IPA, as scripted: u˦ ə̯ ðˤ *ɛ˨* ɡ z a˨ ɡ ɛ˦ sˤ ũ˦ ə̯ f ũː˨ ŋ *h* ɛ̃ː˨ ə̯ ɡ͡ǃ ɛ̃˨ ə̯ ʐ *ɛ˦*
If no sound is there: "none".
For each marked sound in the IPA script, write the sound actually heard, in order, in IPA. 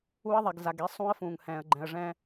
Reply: ɛ˨, h, ɛ̃˦

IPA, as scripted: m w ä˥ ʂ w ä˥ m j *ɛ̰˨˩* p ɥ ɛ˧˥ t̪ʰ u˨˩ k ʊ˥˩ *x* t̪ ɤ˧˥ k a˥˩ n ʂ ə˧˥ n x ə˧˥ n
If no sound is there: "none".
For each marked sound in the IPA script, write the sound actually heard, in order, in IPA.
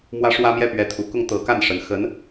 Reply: ɛ˥˩, ŋ

